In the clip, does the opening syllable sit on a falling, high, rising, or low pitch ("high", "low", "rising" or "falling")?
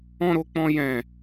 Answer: high